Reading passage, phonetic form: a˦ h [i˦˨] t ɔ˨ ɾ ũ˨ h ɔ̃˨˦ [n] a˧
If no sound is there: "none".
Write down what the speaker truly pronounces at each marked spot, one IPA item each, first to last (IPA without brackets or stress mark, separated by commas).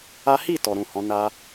i˦˨, n